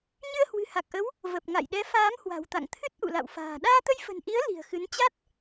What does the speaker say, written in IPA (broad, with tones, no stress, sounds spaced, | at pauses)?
ɲ ɨ˧ ə̯ h w ɨ̤˨˩ h a˨˩ k̚ ʔ ə˨˦ w | v ə˨˩ p̚ ŋ a̰˧˨ j ɗ ɛ˨˦ f aː˨˦ m h w a̤˨˩ w t̪ a̰˧˨ ŋ t̪ʰ ɨ˦˥ t̚ ʔ ṵ˧˨ l a̰˧˨ w f a̤ː˨˩ ɗ aː˧ t̪ ə˧ j f ə̤˨˩ n ʔ i˨˦ ə̯ l i̤˨˩ ə̯ x ɨ˨˦ n t͡ɕ a˦˥ t̚